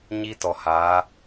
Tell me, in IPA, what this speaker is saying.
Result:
ɲ i˦ t ɔ˨ h aː˨˦

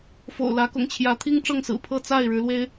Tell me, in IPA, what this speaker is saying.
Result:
f o̰˨˩ ʊ̯ l ä˨˦ k ʊ̰˨˩ ŋ t͡ɕʰ j ä˨˦ t̪ʰ i˦ ŋ ʈ͡ʂ ɤ˥˨ ŋ s ɹ̩˨˩ pʰ ɤ˥˨ t͡s a˥˨ ɪ̯ ɻ ɻ̩˨˦ l w e˦ ɪ̯

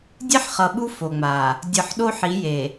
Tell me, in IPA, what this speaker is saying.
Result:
dʲ e˦ ħ χ ʌ˨ ɓ u˦ f o˨ ŋ͡m a˨ | dʲ ɯ˨ ħ ɗ o˦ ħ i˨˦ j e˨

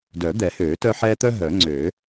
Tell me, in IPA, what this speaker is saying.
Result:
d œ˨˩˦ d̪ ɛ˨˩˦ h øː˨˩˦ t œ˦ ħ ɛ˦ t̪ œ˦ ɦ œ˨˩˦ ŋ͡ǀ øː˨˩˦

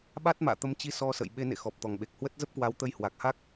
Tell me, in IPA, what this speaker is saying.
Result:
ɓ a˦˥ t̚ m a̰ː˧˨ t̪ ə˨˦ m t͡ɕ i˧ s ɔ˧ s ə̰˧˨ j ɓ e˨˦ n ḛ˧˨ x ɔ˨˩ p̚ t̪ ɔ˨˩ ŋ ɓ e˨˩ k̚ h w ə˦˥ t̚ z ə˦˥ p̚ k w a˨˦ w t̪ ə˧ j h w a˨˩ k̚ h a˦˥ k̚

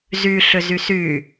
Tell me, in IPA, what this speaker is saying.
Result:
z y ɬ ʏ z y s y

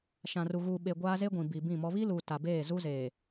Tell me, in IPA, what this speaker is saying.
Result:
ʃ ã˨ r u˨ ɣ uː˨ ɓ e˨ ɡʷ aː˦ z e˦ ɡʷ ĩ˨ b iː˨ b ĩ˦˨ m ɔ˦ β i˦ l uː˨ t a˨ b eː˦˨ z u˦ z eː˨

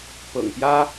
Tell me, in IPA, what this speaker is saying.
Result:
p ɤ̰˨˩ ŋ p j ä˥

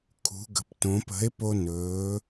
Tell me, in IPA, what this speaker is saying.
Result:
kʰ ṳ˩˧ ɡ ə̤˩ p t õ˩˧ p ə̤˩˥ e̯ p o˧ n ɵː˩˧

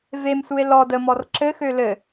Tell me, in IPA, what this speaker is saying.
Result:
v e m s u e̯ l ɔ d ə m ɔ r ǁ ɘ x ø l ɘ

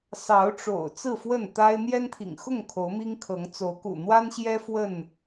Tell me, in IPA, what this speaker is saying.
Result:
s ɑ˨˦ ʊ̯ ʈ͡ʂ o̰˨˩ ʊ̯ t͡s ɹ̩˥˨ f w ə˥˨ n t̪ a˦ ɪ̯ n̪ j ɛ˦ n t̪ʰ ḭ˨˩ ŋ x ʊ˥˨ ŋ kʰ o˨˦ ʊ̯ m i˦ ŋ kʰ ɤ˨˦ ŋ t͡s o˨˦ ʊ̯ k ṵ˨˩ n̪ w a˦ n ɕ j ɛ˦ f w ə˥˨ n

